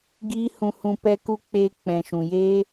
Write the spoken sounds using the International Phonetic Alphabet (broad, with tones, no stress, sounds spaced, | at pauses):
ɡ iː˦ h ũ˧ h ũ˧ p ɛ˦ k u˦ k͡p eː˧ k͡p ɛ̃˨ ʃ ũ˨ j eː˦